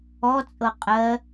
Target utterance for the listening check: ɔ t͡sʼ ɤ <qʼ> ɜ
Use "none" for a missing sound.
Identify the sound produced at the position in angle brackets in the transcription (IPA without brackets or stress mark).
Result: qʼ